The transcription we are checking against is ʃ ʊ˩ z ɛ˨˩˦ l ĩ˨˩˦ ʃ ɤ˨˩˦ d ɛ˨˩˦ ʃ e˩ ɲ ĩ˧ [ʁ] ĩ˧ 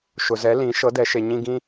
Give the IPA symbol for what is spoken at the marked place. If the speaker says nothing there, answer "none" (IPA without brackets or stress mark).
ɡ